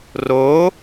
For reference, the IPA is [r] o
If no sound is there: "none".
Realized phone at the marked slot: r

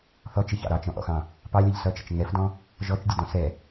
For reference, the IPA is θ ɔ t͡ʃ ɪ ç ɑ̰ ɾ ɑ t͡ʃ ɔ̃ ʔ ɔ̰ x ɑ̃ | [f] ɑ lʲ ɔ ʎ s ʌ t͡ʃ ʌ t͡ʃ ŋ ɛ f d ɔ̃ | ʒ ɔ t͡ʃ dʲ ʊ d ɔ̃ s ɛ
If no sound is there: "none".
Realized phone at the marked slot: p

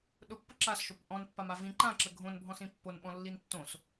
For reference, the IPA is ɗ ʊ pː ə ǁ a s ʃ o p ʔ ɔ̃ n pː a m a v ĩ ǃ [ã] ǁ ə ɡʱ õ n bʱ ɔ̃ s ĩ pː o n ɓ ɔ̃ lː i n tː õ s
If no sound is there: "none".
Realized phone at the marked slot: ã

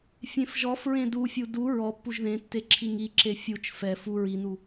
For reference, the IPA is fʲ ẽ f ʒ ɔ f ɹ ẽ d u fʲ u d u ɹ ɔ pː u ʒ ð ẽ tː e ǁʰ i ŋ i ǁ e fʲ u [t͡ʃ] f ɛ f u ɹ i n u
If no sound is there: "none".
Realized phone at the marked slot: t͡ʃ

